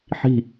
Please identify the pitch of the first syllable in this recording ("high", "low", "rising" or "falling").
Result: falling